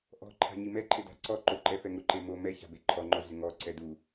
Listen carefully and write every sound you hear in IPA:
ʔ ɔ̤ ǃʰ a̤ ɲ i m ɛ ǃʰ ɪ d a̤ ǀ ɔ ǃ o ǃ ɛ f ɛ ŋ ʊ ǃ e m o m ɛ ç a̤ b e ǃʰ ɔ ŋ͡ǃ o ɮ ɪ ŋ ɔ ǀ ɛ d u

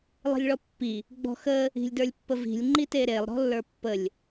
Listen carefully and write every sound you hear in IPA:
lˠ i̤ lʲ ɭ ɔ pː i | ɡ͡b ɔ̤ x ə | i̤ lʲ d ə˞ lʲ pː ə v i̤ lʲ ŋ͡ǃ i t e ɾ e lˠ ɾ ɔ̤ lː ə˞ pː ə lʲ

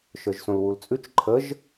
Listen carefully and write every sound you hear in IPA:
ʃ ə˞ ʒ s õ l w u l t͡sʼ ʉ t͡ʃ ǃʰ ə ʒ

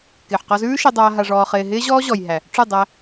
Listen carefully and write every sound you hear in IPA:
k ɪː˨ ħ q ɔ˧ z ʉː˦ ʃ ɪ˧ dˤ aː˧ ɦ a˧ ʐ ɔː˧ χ ɪː˧ ɦ ɪː˦ ʑ ɔː˦ ʑ ɔ˨ j ɦ æ˨ | ʈ͡ʂ ʉ˦˨ dˤ æ˧

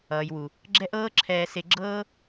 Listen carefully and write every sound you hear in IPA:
ʌː˨ j w u˨ | ɡ͡ǁ ɛ˦ ʔ ɤː˦ ǁʰ ɛː˧ s e˧ ɡ͡ǁ ɤː˦

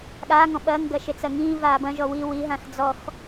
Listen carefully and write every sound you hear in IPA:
ɠ aː ŋ ɔ̃ ɓ ɐː ŋ ɡ ɐ ʃ e t͡s ɐ ŋ ĩː v aː b ɐ̃ ʒ ɔ w i w i ɦ ã x d͡z ɔ x

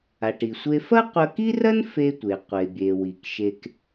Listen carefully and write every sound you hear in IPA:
a˩ ʈ i˩ sʷ e˧ f ɐ˥ qʷ ɐ˧ k i˥ r ɐ˥ n f e˧ tʷ e˩ qʷ e˩ bʲ e˩ w i˩ k ʃ e˧ k

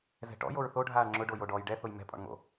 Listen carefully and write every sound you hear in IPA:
z ɛ̤ ʈ ɔ̰ j o ɹ θ o ɖʱ aː ɳ ŋ͡ǁ ʊ ɖ o j o ɖ ɔː j ɖ ɛ θ ʊ j m ɛ̤ pʼ ɔ̰ ɳ ŋ o̰

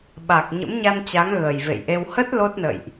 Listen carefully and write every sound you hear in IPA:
ɓ a˨˩ k̚ ɲ ə̰˧˥ m ɲ a˧ n t͡ɕ a˨˦ ŋ ɣ əː˨˩ j v ḛ˧˨ j ʔ e˧ w h ə˦˥ t̚ l o˦˥ t̚ n ə̰˧˨ j ʔ

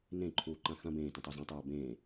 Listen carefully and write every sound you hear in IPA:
n ẽ ǃʰ uː ǃ ã x ɐ̃ b ẽː t ɐ̃ tˤ o z ã tˤ uː b ẽː

